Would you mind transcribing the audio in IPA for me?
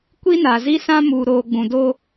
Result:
kʷi˦na˨zi˦sã˦ muː˨ɾoː˨ɡ͡bũ˨do˦

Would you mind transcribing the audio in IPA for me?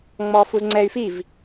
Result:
ŋ͡mɔːfuzŋ͡ǀɛy̯ fiv

